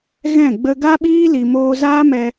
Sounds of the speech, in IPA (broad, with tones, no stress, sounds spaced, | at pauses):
ɣ ɛ̃˦˨ ɡ͡b ə˧ ɡ a˦ ɓ iː˦ l i˨ m oː˧ z aː˦ m ɛ˧